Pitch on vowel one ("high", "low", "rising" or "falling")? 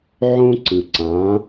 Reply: high